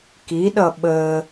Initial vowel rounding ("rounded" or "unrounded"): unrounded